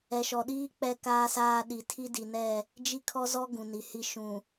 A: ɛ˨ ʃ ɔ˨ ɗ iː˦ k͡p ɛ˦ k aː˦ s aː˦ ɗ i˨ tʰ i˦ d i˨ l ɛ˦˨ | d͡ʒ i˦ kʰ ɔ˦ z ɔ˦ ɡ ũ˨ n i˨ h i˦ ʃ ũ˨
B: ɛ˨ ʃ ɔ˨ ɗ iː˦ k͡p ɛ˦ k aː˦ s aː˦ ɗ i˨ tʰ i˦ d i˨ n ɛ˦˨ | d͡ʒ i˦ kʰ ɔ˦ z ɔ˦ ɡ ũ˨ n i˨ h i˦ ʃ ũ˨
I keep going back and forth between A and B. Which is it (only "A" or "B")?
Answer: B